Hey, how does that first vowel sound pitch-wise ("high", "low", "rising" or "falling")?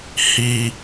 high